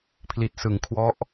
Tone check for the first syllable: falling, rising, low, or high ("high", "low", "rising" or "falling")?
low